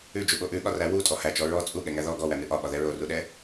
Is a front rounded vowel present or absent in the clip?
absent